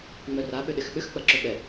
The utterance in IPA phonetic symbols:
ŋ͡m œ r a ɓ ʏ ɗ ɪ x ɓ ʏ x k͡p ɐ ǁ ʏ ɓ ɛ

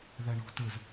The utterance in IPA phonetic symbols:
ð ɛ ɳ ṳ t ɯ z

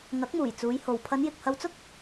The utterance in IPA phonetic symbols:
ŋ ɐ˨˥ k̚ m uː˨˩ j t͡s uː˨˧ j h o˨ w pʰ ɐ˨˧ n j ɪ˨ k̚ h ɐ˧ w t͡s ʊ˥ k̚

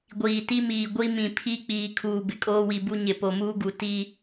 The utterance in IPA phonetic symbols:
ɡʷ iː˨ t i˦ m iː˨ ɡʷ i˦ m ĩ˨ pʰ i˦ k͡p iː˨ kʰ uː˨ b ɪ˨ kʼ oː˦ w i˨ b u˦ ɲ ɪ˨ p o˨ m uː˦ ɡ u˨ t i˦

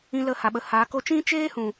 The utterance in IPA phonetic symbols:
ĩ˧ l ə˧ h a˨ ɓ ə˨ h aː˨˦ k o˧ t͡ʃ ĩ˦ t͡ʃ eː˦ h ũ˨

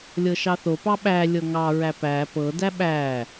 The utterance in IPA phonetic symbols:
lʲ ɤ ʃ ɑ θ o p ɑ ɓ æ lʲ ɤ ŋ ɑ ɹ æ p æ p ɤ d æ ɓ æ

